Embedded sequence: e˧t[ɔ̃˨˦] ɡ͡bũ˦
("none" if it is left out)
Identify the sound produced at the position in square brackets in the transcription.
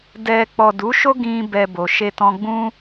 ɔ̃˧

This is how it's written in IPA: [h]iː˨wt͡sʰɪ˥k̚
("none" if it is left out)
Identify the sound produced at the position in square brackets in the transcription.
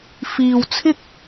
f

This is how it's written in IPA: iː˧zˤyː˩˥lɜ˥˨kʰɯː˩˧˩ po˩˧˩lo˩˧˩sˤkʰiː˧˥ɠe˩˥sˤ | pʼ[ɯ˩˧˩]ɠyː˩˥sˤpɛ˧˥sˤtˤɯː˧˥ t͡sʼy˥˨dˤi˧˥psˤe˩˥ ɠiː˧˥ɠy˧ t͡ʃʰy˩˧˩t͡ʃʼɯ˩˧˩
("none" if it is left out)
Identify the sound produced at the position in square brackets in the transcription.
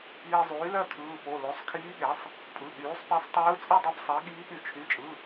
ɯ˩˧˩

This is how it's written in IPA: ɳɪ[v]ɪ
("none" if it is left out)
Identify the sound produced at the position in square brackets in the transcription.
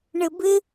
b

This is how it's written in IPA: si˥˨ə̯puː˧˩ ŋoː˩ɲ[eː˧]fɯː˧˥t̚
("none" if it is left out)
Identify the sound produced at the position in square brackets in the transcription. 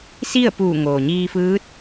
iː˧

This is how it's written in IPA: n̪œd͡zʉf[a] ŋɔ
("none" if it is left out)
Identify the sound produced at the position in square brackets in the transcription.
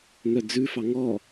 ɑ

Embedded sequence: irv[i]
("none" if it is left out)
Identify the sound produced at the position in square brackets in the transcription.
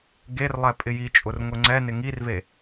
e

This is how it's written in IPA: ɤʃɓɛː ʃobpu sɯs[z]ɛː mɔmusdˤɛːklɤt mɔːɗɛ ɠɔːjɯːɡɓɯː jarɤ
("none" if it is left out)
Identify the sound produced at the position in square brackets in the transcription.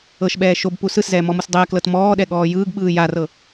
z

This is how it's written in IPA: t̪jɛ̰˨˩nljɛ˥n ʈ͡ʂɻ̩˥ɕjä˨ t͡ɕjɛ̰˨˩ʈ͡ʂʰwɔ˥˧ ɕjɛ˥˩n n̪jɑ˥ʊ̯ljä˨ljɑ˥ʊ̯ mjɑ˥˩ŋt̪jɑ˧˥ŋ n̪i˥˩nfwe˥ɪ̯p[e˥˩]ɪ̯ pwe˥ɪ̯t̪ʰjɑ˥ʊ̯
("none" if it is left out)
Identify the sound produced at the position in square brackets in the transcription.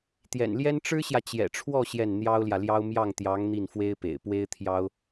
ḛ˨˩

